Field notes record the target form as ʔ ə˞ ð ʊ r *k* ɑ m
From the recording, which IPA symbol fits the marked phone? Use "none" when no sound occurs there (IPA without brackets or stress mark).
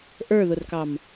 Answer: k